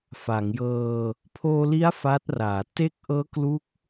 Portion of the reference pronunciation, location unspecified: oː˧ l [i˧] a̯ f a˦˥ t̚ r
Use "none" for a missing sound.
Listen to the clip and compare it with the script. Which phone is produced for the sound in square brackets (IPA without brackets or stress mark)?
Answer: i˦˥